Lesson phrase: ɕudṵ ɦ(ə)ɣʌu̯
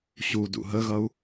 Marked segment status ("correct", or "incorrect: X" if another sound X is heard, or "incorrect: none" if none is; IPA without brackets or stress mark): correct